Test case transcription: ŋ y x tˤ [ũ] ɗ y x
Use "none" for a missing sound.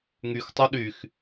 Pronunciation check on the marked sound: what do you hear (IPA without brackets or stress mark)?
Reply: u